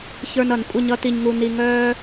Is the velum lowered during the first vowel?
no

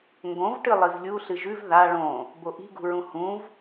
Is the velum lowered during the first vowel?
yes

